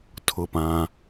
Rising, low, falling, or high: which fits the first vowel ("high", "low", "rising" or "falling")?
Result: falling